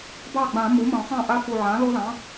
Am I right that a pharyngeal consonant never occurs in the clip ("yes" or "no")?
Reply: no